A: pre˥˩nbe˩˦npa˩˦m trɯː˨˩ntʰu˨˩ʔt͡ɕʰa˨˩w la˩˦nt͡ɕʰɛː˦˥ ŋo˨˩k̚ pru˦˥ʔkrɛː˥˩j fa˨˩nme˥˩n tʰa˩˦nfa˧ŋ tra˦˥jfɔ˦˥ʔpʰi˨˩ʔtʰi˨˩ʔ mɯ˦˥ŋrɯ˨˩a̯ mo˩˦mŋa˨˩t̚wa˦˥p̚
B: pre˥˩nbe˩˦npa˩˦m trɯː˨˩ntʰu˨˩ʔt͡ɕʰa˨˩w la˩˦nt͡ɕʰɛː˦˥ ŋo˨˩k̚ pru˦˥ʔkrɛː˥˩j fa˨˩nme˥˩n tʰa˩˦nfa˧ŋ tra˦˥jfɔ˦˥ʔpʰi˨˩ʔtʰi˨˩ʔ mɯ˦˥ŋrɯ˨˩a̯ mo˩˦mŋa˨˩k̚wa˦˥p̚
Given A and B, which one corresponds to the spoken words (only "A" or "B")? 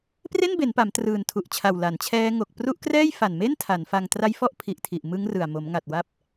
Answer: A